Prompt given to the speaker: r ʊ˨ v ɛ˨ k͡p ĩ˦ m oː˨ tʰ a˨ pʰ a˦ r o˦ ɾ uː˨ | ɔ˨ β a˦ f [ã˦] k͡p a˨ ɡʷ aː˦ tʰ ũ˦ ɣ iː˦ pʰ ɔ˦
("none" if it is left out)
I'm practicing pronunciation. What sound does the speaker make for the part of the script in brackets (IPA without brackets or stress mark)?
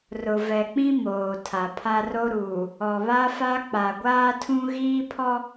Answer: a˦